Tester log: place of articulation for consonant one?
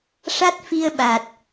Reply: retroflex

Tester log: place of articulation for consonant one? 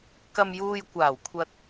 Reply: velar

